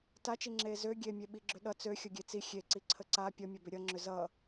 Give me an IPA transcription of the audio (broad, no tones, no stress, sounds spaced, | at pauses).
t a t͡ʃ i ŋ͡ǁ eː z ø ɡʲ e mʲ e ɓ i ɡ͡ǁ ʏ ɗ ʌ t͡s ø xʲ ʌ ɡʲ e t͡s i xʲ e ǀ i ǀʰ ə ǀ a pʲ ʌ mʲ ʌ b ʏ ɾʲ ʌ ŋ͡ǁ ʏ z ʌ